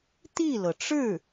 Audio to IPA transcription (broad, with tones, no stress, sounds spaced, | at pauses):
t̪ i˥˩ l ɤ˩ ʈ͡ʂ ɻ̩˥˩